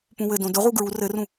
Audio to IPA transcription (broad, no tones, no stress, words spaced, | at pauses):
pũwɘdõ dʊʁu ɡɹu rɘrũ